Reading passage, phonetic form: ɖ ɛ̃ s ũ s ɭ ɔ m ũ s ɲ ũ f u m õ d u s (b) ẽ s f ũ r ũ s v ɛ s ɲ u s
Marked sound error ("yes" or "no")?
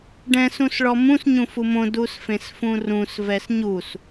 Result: yes